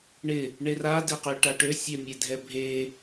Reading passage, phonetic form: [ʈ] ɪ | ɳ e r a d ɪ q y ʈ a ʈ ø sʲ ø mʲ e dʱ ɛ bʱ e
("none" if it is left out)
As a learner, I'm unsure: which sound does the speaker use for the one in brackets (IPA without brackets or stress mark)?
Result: ɳ